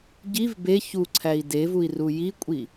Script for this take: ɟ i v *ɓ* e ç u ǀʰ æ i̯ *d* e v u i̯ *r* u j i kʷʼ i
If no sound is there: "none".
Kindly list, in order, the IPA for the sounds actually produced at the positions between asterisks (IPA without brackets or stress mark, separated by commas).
b, d, r